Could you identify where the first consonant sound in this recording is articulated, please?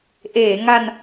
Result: glottal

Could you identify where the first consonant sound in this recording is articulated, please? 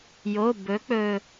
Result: palatal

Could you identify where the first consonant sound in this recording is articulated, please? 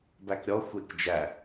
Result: labial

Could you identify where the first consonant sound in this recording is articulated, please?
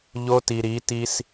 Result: palatal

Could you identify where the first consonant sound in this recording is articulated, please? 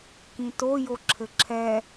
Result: velar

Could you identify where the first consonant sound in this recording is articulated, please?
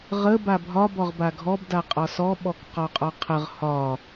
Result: uvular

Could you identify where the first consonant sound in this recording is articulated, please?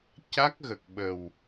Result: palatal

